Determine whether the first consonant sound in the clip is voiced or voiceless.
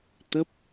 voiceless